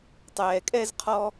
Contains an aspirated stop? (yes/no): yes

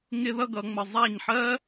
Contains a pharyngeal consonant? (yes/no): yes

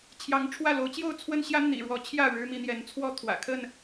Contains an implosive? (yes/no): no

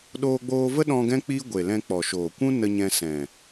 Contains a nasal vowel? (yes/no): yes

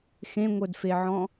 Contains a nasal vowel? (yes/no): yes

